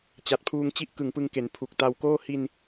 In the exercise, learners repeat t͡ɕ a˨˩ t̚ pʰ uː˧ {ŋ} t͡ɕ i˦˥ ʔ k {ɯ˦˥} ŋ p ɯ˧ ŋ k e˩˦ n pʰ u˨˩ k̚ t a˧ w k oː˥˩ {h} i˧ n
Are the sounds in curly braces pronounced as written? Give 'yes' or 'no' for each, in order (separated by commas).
yes, no, yes